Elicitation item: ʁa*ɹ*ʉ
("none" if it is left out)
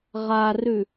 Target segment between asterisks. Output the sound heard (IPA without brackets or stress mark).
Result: r